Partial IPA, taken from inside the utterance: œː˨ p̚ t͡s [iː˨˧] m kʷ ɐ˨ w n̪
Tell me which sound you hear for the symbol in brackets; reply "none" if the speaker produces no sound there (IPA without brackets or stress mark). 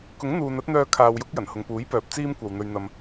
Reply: iː˥